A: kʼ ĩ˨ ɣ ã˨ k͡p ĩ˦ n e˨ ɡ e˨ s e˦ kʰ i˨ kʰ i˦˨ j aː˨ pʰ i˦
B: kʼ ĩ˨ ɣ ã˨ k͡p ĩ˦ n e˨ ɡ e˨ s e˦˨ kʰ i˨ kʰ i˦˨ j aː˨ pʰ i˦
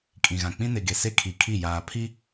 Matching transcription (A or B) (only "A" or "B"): A